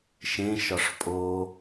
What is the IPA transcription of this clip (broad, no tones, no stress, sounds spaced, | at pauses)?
ʃ ẽ ʃ ɒ ʂ pʼ o